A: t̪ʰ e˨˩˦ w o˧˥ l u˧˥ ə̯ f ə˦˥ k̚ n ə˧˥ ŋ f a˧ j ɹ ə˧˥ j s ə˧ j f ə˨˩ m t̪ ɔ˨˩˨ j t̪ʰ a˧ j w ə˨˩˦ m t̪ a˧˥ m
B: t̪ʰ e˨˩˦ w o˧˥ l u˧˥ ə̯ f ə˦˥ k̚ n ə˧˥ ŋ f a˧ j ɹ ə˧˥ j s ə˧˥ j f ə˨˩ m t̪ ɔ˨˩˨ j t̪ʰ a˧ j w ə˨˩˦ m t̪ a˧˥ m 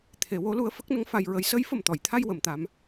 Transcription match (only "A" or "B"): B